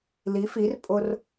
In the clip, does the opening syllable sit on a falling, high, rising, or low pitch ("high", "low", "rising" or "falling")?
rising